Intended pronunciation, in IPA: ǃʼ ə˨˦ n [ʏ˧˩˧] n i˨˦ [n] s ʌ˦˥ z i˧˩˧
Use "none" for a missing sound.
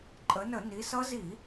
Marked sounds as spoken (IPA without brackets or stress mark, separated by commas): ə˧˩˧, none